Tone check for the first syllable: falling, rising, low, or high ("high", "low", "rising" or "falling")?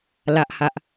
high